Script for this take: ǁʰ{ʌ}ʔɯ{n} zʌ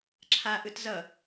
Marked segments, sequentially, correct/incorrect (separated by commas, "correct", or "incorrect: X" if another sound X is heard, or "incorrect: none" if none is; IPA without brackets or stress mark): incorrect: a, incorrect: t